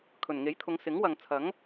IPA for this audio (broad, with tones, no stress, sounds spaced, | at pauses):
kʰ ɵ˨˩ n ŋ e˨˥ j t̪ʰ ʊ˨˧ ŋ s ɪ˨˥ ŋ w ɐ˨ ŋ t͡sʰ ɐ˨˥ ŋ